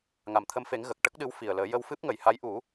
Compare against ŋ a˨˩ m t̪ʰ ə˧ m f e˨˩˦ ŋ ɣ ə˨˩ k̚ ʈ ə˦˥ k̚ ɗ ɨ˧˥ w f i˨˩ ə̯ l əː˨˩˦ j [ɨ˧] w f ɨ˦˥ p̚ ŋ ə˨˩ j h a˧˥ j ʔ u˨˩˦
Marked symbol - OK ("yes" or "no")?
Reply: no